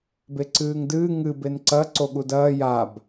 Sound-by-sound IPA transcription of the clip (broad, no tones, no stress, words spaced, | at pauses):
beǀɨːŋdɨː ŋɨ benǀɐ ǀoɠudɐː jab